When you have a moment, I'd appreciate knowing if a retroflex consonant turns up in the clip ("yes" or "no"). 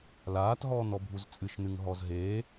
no